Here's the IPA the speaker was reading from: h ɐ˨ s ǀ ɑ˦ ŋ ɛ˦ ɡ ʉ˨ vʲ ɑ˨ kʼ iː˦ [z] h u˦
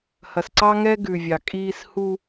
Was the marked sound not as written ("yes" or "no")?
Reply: yes